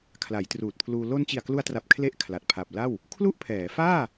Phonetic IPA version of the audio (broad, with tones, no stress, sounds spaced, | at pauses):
kʰ l a˩˦ j t r uː˨˩ t̚ pʰ l uː˧ l o˧ n t͡ɕ i˨˩ a̯ k l u˧ a̯ t r a˨˩ p̚ kʰ l e˦˥ ʔ kʰ l a˨˩ t̚ pʰ a˨˩ p̚ l a˥˩ w | kʰ l u˥˩ ʔ pʰ ɛː˩˦ f aː˥˩